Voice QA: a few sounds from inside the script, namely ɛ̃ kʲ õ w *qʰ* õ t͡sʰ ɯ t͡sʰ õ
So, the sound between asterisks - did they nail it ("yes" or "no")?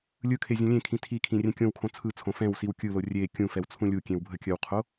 no